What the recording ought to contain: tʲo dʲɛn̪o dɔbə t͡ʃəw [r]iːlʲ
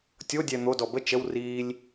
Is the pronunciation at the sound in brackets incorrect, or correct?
correct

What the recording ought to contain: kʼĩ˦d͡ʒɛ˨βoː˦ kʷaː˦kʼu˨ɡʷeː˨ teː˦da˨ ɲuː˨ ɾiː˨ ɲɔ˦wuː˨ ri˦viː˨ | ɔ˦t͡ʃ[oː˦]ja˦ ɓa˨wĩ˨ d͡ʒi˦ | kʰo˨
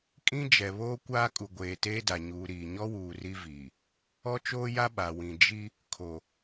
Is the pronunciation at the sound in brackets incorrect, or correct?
correct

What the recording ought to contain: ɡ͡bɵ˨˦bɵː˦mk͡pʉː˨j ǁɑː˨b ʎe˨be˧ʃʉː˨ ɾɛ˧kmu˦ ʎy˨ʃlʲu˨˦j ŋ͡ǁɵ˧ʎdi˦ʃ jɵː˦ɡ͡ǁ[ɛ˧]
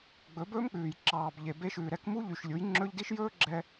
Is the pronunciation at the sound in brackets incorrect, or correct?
correct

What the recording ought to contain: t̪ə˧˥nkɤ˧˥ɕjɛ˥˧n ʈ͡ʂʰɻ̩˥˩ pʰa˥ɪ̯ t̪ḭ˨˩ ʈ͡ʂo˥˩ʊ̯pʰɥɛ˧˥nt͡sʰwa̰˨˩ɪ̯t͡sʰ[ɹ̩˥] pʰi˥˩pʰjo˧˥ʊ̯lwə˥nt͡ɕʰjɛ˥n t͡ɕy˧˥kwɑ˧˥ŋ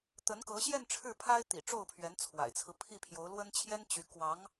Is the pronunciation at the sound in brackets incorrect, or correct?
incorrect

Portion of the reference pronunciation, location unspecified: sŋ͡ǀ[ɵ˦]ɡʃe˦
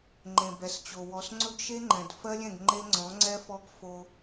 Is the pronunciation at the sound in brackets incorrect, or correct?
correct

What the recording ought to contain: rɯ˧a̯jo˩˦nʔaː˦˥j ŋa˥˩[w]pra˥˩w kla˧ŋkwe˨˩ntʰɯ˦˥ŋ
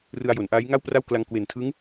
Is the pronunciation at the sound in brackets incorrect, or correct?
correct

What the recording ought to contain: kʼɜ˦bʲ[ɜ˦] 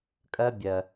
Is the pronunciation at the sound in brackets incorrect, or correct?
incorrect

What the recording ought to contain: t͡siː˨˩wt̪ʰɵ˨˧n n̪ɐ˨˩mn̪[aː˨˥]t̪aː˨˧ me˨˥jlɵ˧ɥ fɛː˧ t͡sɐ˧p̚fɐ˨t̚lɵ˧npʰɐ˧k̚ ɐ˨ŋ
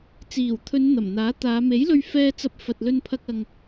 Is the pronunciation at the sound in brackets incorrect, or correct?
correct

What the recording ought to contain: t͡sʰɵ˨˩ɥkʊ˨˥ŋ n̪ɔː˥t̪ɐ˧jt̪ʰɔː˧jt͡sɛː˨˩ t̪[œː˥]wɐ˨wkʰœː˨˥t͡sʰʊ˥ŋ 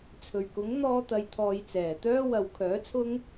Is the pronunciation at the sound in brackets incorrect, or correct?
correct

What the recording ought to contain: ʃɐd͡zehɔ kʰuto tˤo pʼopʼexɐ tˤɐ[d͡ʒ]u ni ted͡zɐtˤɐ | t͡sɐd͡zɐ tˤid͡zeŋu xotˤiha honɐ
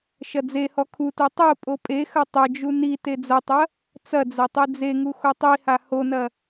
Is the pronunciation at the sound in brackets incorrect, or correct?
correct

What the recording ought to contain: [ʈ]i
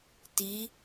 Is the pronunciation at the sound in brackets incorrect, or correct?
incorrect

